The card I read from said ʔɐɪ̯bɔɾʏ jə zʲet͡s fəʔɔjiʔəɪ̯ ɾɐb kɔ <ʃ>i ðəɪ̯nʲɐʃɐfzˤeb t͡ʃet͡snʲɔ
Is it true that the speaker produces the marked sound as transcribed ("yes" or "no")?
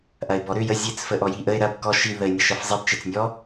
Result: yes